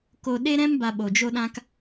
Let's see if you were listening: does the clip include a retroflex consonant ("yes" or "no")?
no